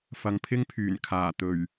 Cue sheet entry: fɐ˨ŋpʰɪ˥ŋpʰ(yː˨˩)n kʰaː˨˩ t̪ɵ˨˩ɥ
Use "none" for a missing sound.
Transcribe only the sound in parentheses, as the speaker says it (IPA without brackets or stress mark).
yː˨˩